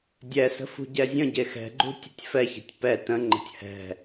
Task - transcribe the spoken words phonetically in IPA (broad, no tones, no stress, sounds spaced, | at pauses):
dʲ ɛ s ə̤ f ṳ ɟ ɛ zʲ ə̃ ɟ e x ɛ̤ ɡ͡ǃ ṳ tʲ ə tʲ f ɛ ç ɛ̤ tʲ p ɛ t ə̃ ŋ͡ǃ ə̤ tʲ h ɛ̤